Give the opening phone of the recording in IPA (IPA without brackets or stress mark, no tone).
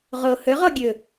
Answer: ʁ